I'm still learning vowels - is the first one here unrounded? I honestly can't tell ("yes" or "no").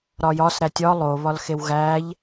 no